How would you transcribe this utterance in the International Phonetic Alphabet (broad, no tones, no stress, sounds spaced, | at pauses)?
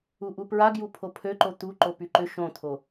u ʔ u p ɹ a ɡ j u pʰ o pʰ ø ǃ o t̪ u ǃ o p y ǃ ʏ ʃ õ t̪ʰ o